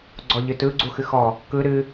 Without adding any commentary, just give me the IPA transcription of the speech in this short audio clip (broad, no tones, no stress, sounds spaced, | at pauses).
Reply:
ɡ͡ǀ ɔ ʎ ɨ t ɯ ɡ͡ǀ u x ɨ x ɔ | k ɯ ɾ ɨ